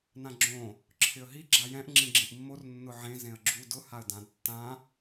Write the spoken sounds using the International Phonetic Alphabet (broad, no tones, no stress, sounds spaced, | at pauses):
n ã ɡ͡ǁ õ | ǁʰ ɪ ə̯ ɦ i ɡ͡ǁ a j ɛ̃ ʔ ŋ͡ǁ ĩ ɡ͡ǁ ĩ ʔ mː o r nː ʊ ʕ ẽ z ẽ ə̯ ɡ͡ǁ u d ʊ h a ə̯ d ã d tː ã